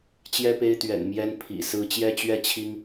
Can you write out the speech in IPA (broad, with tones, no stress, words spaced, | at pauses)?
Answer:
t͡ɕjɛ˦pe˦ɪ̯t̪ɥɛ̰˨˩n mjɛ˦n pʰḭ˨˩sɹ̩˦ t͡ɕjɛ˦t͡ɕɥɛ˥˨t͡ɕʰi˦ŋ